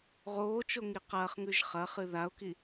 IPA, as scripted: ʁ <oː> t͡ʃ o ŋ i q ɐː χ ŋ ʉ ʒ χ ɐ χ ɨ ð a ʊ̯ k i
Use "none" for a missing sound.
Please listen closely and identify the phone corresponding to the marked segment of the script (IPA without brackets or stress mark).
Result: oː